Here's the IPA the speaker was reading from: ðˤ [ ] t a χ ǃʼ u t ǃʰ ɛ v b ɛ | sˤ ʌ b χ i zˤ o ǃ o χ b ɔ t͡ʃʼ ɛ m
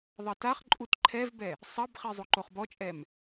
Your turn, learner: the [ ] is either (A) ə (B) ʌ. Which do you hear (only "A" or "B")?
B